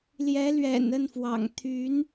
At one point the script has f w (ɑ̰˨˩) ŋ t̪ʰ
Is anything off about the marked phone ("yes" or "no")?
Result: no